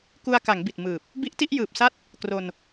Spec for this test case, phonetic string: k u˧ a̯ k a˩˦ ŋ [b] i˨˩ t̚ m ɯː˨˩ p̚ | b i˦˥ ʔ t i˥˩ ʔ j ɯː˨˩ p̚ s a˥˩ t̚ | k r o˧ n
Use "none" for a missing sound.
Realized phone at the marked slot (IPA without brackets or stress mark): b